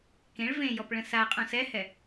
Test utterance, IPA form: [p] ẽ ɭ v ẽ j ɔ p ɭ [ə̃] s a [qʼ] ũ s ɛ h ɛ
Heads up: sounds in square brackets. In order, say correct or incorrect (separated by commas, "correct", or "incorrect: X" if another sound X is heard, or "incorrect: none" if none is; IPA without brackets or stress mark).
incorrect: k, correct, correct